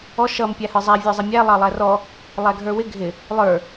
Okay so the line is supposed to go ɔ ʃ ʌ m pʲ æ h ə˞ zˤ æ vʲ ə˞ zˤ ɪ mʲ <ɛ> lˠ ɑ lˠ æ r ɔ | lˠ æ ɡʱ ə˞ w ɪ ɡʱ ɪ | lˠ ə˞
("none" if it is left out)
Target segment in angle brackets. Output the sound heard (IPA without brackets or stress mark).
æ